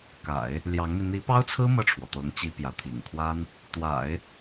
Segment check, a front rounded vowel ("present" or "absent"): absent